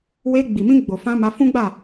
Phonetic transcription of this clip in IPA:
we˧ɡ͡bi˨mĩ˧ɡ͡bo˨ fã˧ ma˧fũ˦ɡ͡ba˦˨

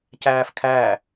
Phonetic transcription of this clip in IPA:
cæːfkʰæ

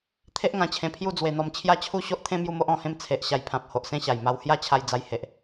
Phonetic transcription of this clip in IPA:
t̪ʰe˦ʔŋã˧t͡ɕʰẽ˧pʰju˥˧ d͡zwe˧n̪ɔ˧m t͡ɕʰja˥˧t͡ɕʰu˥˧ɕo˦ʔt̪ʰẽ˥˧ mju˥˧mo˦ʔ ɔ̃˧hẽ˦m t͡sʰe˨ʔ ɕa˧jpʰã˨p̚ ho˨ʔsẽ˥˧ɕa˨˩j ma˧whja˥˧t͡ɕʰa˧j d͡za˧jhe˨ʔ

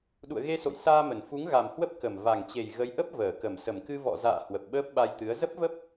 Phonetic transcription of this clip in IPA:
ɗṵ˧˨ə̯ɣe˧so̰˧˨j saː˧mə˧˩n fu˨˦ŋɣa˨˩mhwə˦˥p̚ kə˨˩m va˨˩ŋt͡ɕe˨˩j ɣə˨˦j ʔə˦˥p̚vəː˧˩kə˧˩m sə˧˩mkɨ˧vɔ̰˧˨za̰ː˧˨ hwə˨˩p̚ɓəː˦˥p̚ɓa˧jt̪ɨ˨˦ə̯ zə˦˥p̚və˦˥p̚

